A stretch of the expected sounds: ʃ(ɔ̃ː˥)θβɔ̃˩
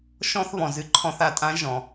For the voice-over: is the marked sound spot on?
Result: no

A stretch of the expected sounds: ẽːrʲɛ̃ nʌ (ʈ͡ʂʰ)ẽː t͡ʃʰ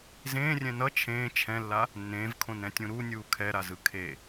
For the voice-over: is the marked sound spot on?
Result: no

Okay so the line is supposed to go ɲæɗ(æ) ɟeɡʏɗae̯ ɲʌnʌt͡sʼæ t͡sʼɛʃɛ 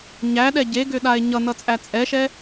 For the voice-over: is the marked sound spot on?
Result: no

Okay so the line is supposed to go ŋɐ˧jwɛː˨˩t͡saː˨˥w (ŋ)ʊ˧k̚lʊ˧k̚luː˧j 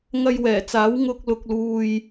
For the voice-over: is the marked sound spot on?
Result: yes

